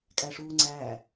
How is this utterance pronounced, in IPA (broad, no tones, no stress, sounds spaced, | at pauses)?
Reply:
kʼ æ ʂ uː ŋ͡ǀ æː